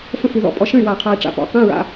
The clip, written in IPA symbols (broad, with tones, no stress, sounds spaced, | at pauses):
f ə̃˥˩ f ʉ˥˩ ð ɔ̰˥˩ pʼ ɔ˧ ʃ ə̃˥˩ y̯ w a˧˩ qʰ a˧ i̯ ʈ͡ʂ a̰˧˩ p ɔ̰˧˥˧ q ɛ̃˧˥˧ ɹ a̰˧˥˧